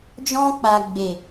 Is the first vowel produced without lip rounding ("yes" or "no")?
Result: no